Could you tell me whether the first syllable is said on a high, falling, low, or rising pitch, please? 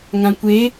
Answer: low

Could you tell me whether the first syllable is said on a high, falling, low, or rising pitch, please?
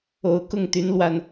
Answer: low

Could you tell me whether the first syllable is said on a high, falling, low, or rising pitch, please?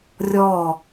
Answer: falling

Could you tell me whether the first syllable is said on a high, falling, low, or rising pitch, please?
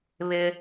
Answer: high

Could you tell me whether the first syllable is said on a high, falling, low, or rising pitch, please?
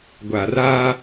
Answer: low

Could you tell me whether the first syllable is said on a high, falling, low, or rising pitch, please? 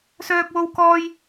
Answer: high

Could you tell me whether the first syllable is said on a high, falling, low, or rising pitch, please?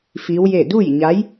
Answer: rising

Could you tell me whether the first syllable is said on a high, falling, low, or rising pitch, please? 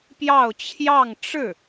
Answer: falling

